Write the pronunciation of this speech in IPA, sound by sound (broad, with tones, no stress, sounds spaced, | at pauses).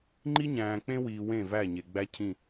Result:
ŋ͡ǃ i˦ ɲ æ̃ː˨ k͡p ẽ˦ w iː˨ w ẽ˦˨ v æ˦˨ ɲ e˨ ɡ͡b æ˦ cʰ ĩ˦˨